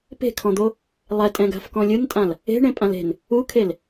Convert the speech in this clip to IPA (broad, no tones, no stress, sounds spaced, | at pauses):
p e̤ kʰ ɔ̃ d̪ o | lˠ ɛ tʼ ɛ̃ ɡ a̤ f k ɔ̃ lʲ ɯ n tʼ ã l | e̤ ɳ ẽ pʼ ã l e̤ n | u kʰ e l